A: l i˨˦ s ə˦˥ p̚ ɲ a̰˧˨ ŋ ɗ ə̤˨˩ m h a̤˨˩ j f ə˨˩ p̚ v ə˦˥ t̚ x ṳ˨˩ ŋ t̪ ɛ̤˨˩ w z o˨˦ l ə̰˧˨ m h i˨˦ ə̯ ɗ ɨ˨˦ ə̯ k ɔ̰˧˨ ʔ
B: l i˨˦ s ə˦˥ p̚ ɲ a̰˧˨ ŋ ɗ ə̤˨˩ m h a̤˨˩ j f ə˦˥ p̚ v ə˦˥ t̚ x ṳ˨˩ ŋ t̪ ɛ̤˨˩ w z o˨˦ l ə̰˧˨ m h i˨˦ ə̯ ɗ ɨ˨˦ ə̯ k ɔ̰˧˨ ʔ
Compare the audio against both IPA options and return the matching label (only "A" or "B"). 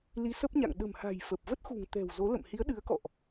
A